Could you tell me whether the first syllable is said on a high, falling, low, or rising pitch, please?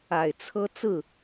low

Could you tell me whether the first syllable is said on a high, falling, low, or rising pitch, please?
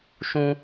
high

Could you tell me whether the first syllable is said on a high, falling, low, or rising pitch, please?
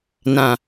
low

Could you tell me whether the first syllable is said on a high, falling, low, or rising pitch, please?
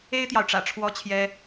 high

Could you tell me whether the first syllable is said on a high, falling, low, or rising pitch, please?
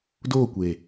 falling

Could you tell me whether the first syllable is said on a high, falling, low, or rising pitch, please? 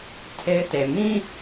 high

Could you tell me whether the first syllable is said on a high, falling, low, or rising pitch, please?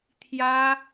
high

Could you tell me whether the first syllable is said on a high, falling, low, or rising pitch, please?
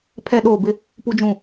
falling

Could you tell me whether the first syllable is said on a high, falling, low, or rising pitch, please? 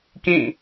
falling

